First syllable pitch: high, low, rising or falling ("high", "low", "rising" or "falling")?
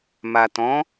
low